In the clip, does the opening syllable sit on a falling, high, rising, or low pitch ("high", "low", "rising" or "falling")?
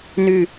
falling